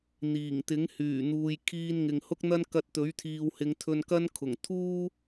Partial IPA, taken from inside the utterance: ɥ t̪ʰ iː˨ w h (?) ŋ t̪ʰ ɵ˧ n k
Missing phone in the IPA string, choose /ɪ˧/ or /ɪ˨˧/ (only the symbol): ɪ˨˧